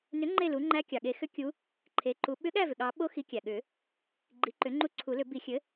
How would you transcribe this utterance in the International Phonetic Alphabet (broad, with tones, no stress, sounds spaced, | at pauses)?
n ʏ˩˥ ŋ͡ǃ e˥˩ l u˩˥ ŋ͡ǃ æ˧˥ kʲ ɑ˩ ɠ e˨˩˦ x ʏ˧˥ kʲ u˧˥ | ǃʰ e˩˥ ǃ u˩˥ ɓ ʏ˧˥ ɠ æ˥˩ v ʏ˩ ɠ ɑ˨˩˦ ɓ o˧˥ x i˩˥ kʲ æ˩ ɠ ʏ˨˩˦ | ɡ͡ǃ i˩˥ ǃ ʏ˩˥ ŋ͡ǃ u˧˥ ǀʰ u˨˩˦ l ʏ˨˩˦ b i˨˩˦ xʲ ɘ˩˥